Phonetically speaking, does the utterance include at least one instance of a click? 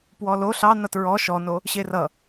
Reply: no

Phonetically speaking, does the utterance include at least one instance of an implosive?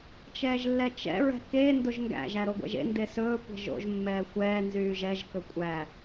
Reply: no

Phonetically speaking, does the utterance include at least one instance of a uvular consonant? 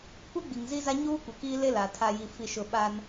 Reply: no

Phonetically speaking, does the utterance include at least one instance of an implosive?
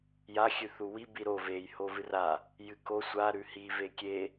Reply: no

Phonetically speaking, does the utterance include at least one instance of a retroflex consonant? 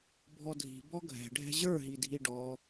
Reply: yes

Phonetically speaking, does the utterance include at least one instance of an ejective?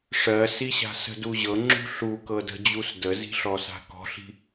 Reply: no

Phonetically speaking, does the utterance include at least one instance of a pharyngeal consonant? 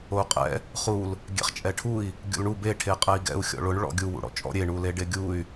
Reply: no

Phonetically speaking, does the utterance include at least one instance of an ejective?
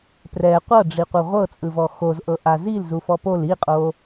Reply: yes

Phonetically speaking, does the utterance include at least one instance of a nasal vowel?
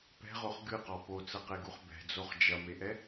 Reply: no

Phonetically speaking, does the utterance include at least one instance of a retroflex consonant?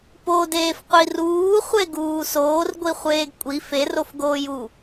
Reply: no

